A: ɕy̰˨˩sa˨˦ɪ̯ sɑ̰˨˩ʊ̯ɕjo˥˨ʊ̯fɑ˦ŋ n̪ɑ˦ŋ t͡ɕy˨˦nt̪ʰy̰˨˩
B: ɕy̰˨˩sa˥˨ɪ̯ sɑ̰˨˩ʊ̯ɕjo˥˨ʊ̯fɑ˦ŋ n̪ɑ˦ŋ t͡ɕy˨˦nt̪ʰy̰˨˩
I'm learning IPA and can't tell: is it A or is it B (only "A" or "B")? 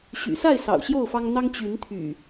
B